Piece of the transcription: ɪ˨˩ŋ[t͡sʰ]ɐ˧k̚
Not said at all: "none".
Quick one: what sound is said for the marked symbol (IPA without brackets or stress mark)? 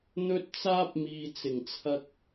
t͡sʰ